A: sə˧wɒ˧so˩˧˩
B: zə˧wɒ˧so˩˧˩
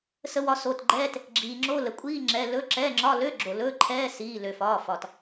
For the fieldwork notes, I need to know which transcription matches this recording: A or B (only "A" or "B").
A